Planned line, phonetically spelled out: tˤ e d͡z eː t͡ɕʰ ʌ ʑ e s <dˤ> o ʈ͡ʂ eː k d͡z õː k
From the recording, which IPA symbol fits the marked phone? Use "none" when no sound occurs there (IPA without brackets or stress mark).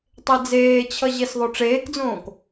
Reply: ðˤ